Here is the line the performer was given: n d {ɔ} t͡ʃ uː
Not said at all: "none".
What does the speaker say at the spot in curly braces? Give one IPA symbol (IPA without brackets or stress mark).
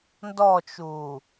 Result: ɔ